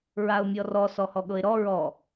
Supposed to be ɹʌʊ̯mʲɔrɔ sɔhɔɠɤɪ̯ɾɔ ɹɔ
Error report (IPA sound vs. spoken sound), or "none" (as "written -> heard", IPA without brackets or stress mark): ʌ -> a